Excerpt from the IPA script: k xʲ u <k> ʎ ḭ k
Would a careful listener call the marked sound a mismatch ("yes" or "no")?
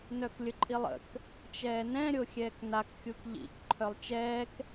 no